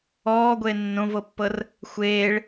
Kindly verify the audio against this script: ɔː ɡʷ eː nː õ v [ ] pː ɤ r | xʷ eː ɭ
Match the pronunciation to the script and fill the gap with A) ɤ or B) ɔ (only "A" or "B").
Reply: A